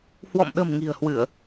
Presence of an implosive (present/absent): present